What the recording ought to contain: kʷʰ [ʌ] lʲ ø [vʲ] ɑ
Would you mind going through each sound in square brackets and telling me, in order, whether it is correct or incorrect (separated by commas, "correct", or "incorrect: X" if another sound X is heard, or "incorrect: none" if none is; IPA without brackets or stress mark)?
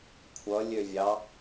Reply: correct, correct